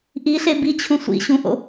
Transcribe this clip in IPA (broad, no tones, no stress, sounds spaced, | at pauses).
ʔ i ɬ e b i t͡ɕʰ ũ sʷ ḭ ɕ ũ ʔ o̰